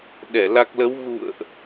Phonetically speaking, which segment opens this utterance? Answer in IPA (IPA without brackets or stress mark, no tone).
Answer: ɗ